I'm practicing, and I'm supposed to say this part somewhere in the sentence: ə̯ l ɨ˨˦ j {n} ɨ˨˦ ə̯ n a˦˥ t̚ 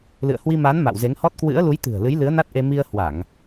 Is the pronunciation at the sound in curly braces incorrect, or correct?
incorrect